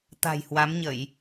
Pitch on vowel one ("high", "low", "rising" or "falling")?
low